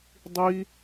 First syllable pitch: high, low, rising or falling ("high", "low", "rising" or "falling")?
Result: high